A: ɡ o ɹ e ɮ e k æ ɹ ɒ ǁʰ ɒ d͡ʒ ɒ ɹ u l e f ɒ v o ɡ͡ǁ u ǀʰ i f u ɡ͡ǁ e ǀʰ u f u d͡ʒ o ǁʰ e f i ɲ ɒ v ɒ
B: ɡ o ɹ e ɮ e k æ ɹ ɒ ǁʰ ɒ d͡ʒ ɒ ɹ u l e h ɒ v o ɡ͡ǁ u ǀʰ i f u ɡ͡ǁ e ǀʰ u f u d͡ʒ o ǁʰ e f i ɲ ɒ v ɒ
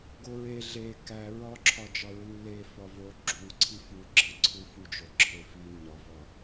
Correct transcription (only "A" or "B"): A